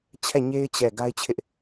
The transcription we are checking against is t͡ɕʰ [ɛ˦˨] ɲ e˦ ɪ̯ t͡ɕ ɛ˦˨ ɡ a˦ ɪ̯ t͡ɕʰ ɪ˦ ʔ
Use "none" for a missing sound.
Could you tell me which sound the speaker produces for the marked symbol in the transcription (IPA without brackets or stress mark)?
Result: ɛ˦˨